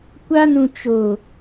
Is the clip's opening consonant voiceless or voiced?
voiceless